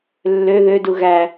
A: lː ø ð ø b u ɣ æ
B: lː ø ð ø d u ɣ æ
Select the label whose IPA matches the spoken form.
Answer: B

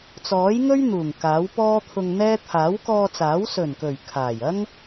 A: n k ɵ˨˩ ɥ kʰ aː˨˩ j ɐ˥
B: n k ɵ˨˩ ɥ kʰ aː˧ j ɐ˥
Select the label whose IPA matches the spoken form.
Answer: A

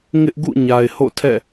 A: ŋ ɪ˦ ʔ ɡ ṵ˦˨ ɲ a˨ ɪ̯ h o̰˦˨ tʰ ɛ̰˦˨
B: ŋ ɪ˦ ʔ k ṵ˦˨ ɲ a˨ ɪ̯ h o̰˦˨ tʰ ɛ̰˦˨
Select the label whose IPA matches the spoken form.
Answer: A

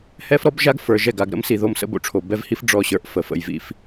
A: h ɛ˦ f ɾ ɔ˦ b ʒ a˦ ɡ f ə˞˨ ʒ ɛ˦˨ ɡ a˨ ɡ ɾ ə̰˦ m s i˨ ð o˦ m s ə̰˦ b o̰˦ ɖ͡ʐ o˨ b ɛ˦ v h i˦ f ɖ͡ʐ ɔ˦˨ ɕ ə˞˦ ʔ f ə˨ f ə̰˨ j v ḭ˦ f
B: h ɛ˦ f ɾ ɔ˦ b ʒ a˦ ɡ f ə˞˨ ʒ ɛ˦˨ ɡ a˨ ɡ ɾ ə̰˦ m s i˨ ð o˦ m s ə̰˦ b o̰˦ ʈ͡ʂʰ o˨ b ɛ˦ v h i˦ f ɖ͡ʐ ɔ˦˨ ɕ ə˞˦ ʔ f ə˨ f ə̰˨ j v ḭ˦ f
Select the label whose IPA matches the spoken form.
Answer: B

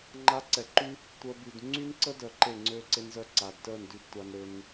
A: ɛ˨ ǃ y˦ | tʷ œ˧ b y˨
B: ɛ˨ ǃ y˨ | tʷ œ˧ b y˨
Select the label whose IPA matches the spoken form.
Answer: A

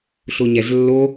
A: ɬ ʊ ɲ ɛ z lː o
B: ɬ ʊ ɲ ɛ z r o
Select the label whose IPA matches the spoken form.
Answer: A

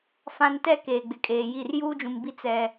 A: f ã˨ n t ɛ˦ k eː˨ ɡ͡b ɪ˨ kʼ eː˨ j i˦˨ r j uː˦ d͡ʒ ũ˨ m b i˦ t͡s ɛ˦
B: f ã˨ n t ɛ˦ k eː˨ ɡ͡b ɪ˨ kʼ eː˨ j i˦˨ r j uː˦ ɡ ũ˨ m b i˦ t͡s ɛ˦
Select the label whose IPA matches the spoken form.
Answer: A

